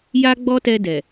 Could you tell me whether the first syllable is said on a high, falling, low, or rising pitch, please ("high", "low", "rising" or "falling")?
high